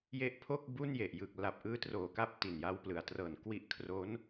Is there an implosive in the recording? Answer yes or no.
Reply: no